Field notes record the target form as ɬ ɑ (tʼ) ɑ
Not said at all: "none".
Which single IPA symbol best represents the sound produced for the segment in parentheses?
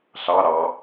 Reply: ɾ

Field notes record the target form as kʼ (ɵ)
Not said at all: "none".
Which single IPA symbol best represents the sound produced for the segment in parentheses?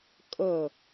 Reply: ə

